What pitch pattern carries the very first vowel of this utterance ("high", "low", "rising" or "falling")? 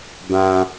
high